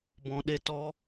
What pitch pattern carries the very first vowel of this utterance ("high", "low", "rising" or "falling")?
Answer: low